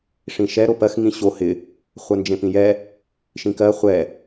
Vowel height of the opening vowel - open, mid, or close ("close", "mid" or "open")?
close